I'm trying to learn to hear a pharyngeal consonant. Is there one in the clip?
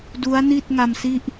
no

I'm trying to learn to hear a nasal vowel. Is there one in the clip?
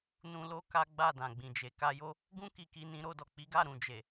yes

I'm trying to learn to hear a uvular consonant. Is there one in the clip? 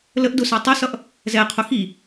yes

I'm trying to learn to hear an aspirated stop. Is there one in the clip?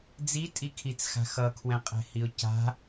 yes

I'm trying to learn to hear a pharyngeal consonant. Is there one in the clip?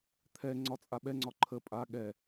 no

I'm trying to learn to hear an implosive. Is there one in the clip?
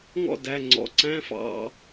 no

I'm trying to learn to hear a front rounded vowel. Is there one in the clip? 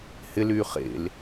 yes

